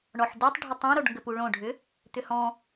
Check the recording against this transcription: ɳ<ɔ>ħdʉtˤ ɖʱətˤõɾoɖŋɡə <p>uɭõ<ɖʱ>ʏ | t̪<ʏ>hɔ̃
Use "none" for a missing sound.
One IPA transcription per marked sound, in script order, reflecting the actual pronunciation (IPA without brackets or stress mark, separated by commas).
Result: ɔ, p, ɖʱ, ʏ